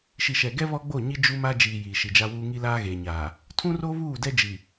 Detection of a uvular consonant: absent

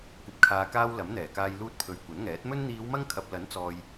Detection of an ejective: absent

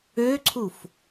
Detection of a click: present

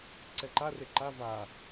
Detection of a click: present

